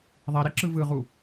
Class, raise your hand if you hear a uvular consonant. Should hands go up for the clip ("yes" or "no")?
yes